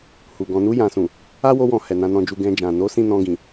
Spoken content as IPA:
h u˨ ɡ ɔ̃˨ n u˧ j ã˨ s ũ˨ | a˦ w o˧ w ɔ̃˨ h ɛ˨ n ã˧ n ɔ̃˧ d͡ʒ u˧ ɡ ɛ̃˧ d͡ʒ ã˨ n o˨˦ s ĩ˦˨ n ɔ̃˧ ɡ ĩ˨

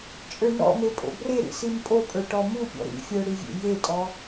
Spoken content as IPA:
t͡ʃʼ ə˞ n ɔ̰ m e pʼ o̰ b r e ɾ ḭ s i m pʼ o pʼ ə˞ ʈ ɔ m u pʲ ɔ̰ ɾ ḭ fʲ ə˞ ɽ i vʲ ḛ j e tʼ ɔ

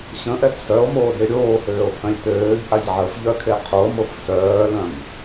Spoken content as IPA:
ɕ ə̃ ʔ ɛ t s œ o̯ m oː d e ɾʲ oː h øː o̯ pʰ œ̃ lʲ t øː ʎ ʔ a ʎ ʕ ə f ʎ œ kʰ e qʰ o m o f s œː l œ̃ m

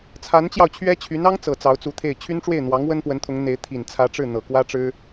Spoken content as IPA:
t͡sʰ a˧˥ n t͡ɕ j ɑ˧ ʊ̯ t͡ɕʰ ɥ ɛ˥ t͡ɕʰ y˧˥ n ɑ˥ ŋ t͡s ɤ˨˩ t͡s ɑ˧˥ ʊ̯ t͡s u˧˥ t̪ʰ e˥˩ ɪ̯ t͡ɕʰ y˥ n ʈ͡ʂ w e˥˩ ɪ̯ n̪ w ɑ˧˥ ŋ w ə˥ n p w ə˧˥ n t̪ʰ ʊ˧˥ ŋ n̪ e˧˥ ɪ̯ t̪ʰ i˨˩ n t͡sʰ ä˧˥ ʈ͡ʂ ɻ̩˥˩ n̪ ɤ˨˩ k w ä˥ ʈ͡ʂ ɻ̩˥

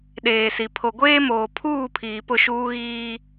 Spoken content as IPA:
ɗ eː˨ s i˨ pʰ o˨ ɡʷ eː˦ m oː˨ pʰ uː˦˨ pʰ iː˨ p ʊ˦˨ ʃ uː˦ ɣ iː˦

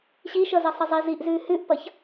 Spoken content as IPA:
ɕ i ʃ ʌ z ə sˤ ə zˤ i z i ʔ z ʉː h ʉ ʔ p ʌ ç

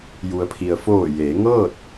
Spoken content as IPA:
j u˩ ə̯ pʰ i˩ ə̯ f oː˧˩ j eː˩˧ ŋ ɤː˥˨ t̚

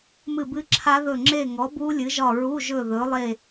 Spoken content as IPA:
m ɨ˦˨ b ɨ˦˥ ǁʰ a˦˥ ð ɵ˦˨ ŋ͡ǁ e˦˨ ŋ ɔ˨˥ b u˦˥ lʲ ɨ˨˥ ʒ ɒ˦˨ ɹ u˧˥˧ ʒ ɵ˦˨ ð ɵ˨˥ lˠ e˦˨

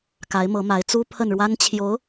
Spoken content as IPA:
k a˧˥ ɪ̯ m ɤ˧˥ m a˧˥ ɪ̯ t͡s u˥ pʰ ə˥˩ n ɻ w a˥ n t͡ɕʰ j o˧˥ ʊ̯

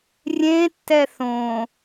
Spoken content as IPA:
rʲ ẽ tː ɛ θ õ

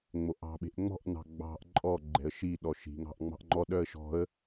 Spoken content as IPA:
ŋ͡m o ʔ ɑ̤ ɓ e̤ ʔ ŋ͡m ɔ̤ ʔ n ɑ̤ ɡ͡b ɑ̤ ʔ ǃʼ ɔ ɡ͡ǃ ɛ̤ ə̯ ʃ i ɗ ɔ ʃ i̤ ŋ ɑ̤ ʔ ŋ͡m ɑ̤ ʔ ŋ͡ǃ ɔ ɗ œ ə̯ ʃ ɔ̤ ə̯

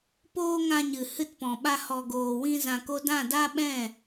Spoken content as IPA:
p oː˦ ŋ ã˧ ɲ ɨ˨ h ɨ˧ t p ɔ̃˨ ɓ a˧ h ɔ˧ ɡ oː˧ w ĩ˦ z ã˧ k o˦ d ã˦˨ d a˦ ɓ ɛ̃˦˨

